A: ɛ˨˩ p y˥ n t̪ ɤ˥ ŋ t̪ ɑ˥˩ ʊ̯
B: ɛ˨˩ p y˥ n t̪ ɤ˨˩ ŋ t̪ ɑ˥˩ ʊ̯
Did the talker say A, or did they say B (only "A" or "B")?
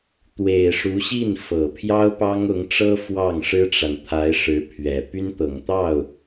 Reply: B